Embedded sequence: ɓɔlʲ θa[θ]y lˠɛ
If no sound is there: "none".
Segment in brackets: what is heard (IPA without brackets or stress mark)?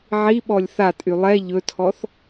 tʼ